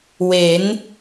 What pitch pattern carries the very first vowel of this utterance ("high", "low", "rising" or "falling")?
rising